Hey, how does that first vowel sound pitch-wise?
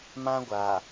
high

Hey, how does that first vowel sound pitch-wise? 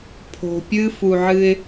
low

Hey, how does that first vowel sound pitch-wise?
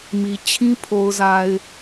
low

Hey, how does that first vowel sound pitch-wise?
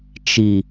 low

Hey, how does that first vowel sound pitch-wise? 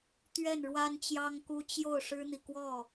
falling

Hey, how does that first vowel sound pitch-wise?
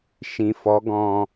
low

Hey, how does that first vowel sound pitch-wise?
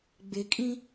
rising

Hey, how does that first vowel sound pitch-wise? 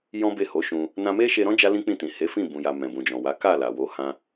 high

